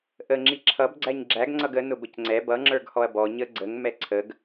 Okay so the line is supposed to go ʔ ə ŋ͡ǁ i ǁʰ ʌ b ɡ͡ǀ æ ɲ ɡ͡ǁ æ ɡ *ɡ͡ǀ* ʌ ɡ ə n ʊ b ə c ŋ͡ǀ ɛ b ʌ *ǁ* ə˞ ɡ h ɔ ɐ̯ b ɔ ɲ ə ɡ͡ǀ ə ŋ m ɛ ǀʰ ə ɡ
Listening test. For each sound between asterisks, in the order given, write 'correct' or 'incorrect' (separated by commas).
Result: incorrect, incorrect